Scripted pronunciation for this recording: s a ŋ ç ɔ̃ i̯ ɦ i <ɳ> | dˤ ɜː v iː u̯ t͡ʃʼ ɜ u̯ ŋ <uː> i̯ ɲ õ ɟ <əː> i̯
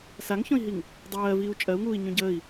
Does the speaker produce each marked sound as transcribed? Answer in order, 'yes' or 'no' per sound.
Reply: no, yes, yes

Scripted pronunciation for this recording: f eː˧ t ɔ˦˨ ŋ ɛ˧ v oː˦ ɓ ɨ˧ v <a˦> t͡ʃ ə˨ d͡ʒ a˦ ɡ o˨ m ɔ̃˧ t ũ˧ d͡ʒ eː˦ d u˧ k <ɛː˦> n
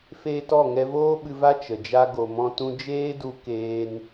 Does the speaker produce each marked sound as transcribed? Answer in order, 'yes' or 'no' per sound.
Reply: yes, no

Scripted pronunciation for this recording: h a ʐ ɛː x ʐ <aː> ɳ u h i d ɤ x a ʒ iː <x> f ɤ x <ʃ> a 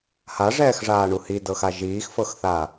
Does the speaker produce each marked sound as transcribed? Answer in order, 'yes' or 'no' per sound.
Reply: yes, yes, no

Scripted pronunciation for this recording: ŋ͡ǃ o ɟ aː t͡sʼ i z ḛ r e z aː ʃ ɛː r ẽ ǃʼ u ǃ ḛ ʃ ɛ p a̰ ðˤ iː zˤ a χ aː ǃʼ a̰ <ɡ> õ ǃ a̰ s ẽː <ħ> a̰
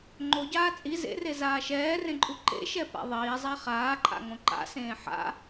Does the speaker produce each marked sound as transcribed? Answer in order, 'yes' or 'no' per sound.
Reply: no, yes

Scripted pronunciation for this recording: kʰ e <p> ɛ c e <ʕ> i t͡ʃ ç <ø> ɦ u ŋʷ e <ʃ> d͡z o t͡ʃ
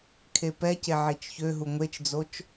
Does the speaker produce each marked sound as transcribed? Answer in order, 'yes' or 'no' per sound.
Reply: yes, yes, yes, no

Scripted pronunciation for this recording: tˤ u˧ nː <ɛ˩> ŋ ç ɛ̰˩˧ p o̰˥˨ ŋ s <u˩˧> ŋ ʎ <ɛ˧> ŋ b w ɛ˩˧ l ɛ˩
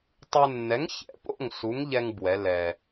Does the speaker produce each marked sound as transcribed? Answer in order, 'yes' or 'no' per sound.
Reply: no, no, yes

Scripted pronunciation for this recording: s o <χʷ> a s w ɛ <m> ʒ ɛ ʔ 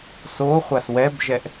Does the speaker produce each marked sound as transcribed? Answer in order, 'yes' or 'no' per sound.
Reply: yes, no

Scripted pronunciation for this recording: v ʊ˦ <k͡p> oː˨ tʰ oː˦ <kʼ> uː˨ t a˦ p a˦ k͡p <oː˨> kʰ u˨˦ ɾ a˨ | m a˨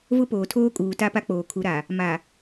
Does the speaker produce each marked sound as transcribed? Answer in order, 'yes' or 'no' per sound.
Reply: no, yes, yes

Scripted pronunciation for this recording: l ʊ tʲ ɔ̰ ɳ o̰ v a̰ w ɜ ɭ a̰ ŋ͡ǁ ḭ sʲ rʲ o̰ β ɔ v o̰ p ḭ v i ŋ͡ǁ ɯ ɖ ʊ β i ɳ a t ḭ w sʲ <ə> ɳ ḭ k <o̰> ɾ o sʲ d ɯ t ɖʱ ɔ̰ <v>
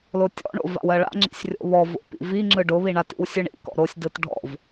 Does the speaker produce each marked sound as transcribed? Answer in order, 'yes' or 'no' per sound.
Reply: no, no, yes

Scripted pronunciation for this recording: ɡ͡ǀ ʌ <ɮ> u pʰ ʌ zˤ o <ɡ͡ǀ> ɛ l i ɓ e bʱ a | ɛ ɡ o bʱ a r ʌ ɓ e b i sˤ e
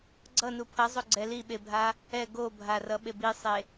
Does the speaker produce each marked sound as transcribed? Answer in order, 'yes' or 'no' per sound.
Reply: no, yes

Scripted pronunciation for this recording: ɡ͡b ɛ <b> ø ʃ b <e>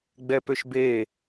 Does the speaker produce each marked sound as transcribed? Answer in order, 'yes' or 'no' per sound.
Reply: no, yes

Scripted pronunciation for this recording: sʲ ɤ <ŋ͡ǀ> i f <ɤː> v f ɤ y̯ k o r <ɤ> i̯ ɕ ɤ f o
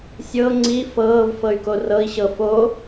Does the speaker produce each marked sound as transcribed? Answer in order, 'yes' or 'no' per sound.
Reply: yes, yes, yes

